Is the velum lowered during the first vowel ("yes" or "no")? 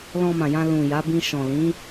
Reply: yes